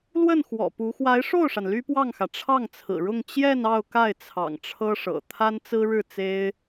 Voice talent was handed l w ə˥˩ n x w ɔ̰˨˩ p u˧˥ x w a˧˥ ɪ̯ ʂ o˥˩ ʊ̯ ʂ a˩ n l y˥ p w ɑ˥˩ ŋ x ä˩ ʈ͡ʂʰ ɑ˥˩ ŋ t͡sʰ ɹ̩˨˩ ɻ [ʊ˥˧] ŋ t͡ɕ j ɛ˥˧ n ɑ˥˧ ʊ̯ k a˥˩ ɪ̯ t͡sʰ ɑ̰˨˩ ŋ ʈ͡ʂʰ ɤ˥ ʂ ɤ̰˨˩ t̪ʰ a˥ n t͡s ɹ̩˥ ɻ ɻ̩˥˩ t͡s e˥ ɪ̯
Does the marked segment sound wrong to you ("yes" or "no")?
no